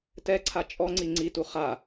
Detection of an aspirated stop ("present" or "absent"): present